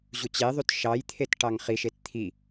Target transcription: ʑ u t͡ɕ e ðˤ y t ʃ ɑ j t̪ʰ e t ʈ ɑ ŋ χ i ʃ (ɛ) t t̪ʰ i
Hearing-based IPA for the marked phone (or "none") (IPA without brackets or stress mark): e